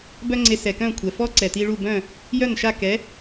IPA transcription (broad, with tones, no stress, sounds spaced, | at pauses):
b œ˥ ŋ͡ǀ e˧ s ɛ˩ k œ̃˥˩ kʷʰ ɛ˩ f ɔ˥ ǀ ɛ˩ t i˧ ɭ u˥˩ b œ̃˥˩ | j œ˥˩ n ʃ a˥˩ k ɛ˩˥